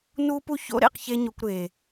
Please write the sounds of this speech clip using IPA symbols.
n u˧ p u˧ ç o̰˦ ɾ ḛ˦˨ q ç e˦ ɲ o˧ kʷ ɾ e˨

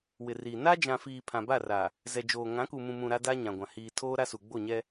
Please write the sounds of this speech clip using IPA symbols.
w ɪ˨ r iː˨ n a˦ d͡ʒ ã˨ f iː˨ pʰ ã˨ b a˦˨ r a˨ | z ɛ˨ d͡ʒ oː˨ ŋ ã˨˦ k u˨ m ũ˨ m ũ˨ ɾ a˦ d a˦ ɲ ã˨ ɡʷ ã˨ h iː˨ tʰ oː˦ ɾ a˦ s u˨ ɡ͡b o˦˨ ɲ ɛ˦

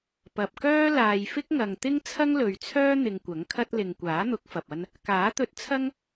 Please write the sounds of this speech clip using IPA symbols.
p ɐ˨ p̚ k œː˥ l aː˨ j f ɪ˥ k̚ ŋ ɐ˨ ŋ t̪ ɪ˥ ŋ t͡sʰ ɐ˥ ŋ l ɵ˨ ɥ t͡sʰ œː˥ n̪ ɪ˧ ŋ kʷ ɐ˨˥ ŋ kʰ ɐ˥ t̚ l ɪ˨ ŋ kʷ aː˨˥ n̪ ʊ˨˥ k̚ f ɐ˨ p̚ ɐ˥ n | k aː˨˥ t̪ ɵ˧ t̚ t͡sʰ ɐ˥ ŋ

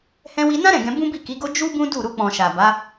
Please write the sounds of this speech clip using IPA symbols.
h ɛ̃˧ w i˧ n ã˦ ɾ ɛ̃˦˨ ɡ ɛ̃˧ b ũ˦ b i˦˨ k i˨˦ ɡ o˦ d͡ʒ u˦ b ũ˦ d u˦˨ ɾ u˧ k͡p ɔ̃˨ ʃ a˨ b a˨˦

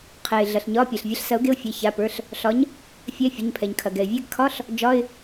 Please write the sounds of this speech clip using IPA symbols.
qʰ ɛ˩ ɪ̯ ɮ ɐ˩ ɬ ɲ ɒ˧˥˧ pʲ ɛ˩ ɬ vʲ ɐ˨˥ ɬ s ɐ˨˥ ʊ̯ ɡ e˧˥˧ ʊ̯ fʲ e˩˧˩ ç a˩˧˩ p ə˞˩˧˩ ɬ | ɬ ɒ˨˥ ɲ | fʲ ɛ˧˥˧ fʲ ɐ˩˧˩ ɲ pʰ ɛ˩ ɲ kʰ ɐ˩ ɡ ɛ˩ ɪ̯ vʲ ɛ˧˥˧ ɡ kʰ ɒ˧˥˧ ɬ | d͡ʒ ɒ˧˥˧ ɪ̯

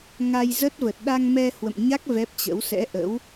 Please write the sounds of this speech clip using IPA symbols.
ŋ a˧ j z ə˦˥ t̚ v ə˨˩ t̚ ɗ a˧ ŋ m ɛ˧ h w ə̰˧˨ m ɲ a˦˥ k̚ v ɛ˦˥ p̚ t͡ɕ ə̰˧˥ w s ɛ̰˧˥ ʔ ə̰˧˥ w

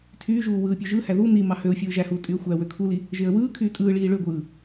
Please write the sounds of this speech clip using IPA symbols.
tʰ yː ʒ uː w ɯː pʲ ø ʒ ɯ h æ ð u n i m ɑ h ø ʊ̯ fʲ ɯː ʒ æ h uː tʼ y ə̯ xʷ æ w ø kʰ u l i | ʒ e ə̯ w ɯː kʰ yː tʼ ɯː ɭ iː ɭ ø ɡʷ ɯː

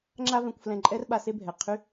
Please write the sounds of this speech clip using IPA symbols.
ŋ͡ǁ a˥ v ɛ̃˧ kʷ f l ɛ̃˧ ǃʼ ɛ˥ r ɓ a˧ s e˥ bʱ ɛ˩ qʰ y˥

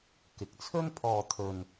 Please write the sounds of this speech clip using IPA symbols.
k ɪ˨ k̚ t͡sʰ ɵ˥ n pʰ ɔː˧ t̪ʰ ɵ˧ n

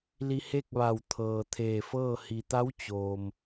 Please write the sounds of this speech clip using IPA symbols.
l i˧ h e˥˨ k̚ ʋ a˧˩ w t̪ʰ ɤː˩ t̪ʰ eː˧˩ f ɤː˥˨ h i˩ t̪ a˧˥ w t͡ɕ oː˩ m

